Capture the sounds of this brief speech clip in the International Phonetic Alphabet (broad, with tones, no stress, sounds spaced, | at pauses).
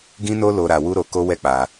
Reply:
ɡ ĩ˦ n o˦ l o˧ ɾ a˧ w u˦ ɾ o˧ k o˦ w ɛ˦ k͡p a˧